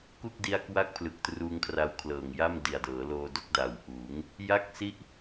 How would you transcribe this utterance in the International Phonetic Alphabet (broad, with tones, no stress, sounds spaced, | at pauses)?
k u˥˩ k̚ d i˧ a̯ k w a˥˩ k̚ pʰ l ɯ˨˩ k̚ t r uː˧ ŋ kʰ r a˧ w kʰ l ɤː˨˩ ŋ j a˥˩ m d i˨˩ a̯ d ɤː˩˦ l oː˧ d o˦˥ k̚ d a˨˩ w ʔ uː˩˦ ŋ | j a˥˩ k̚ s i˥˩ ʔ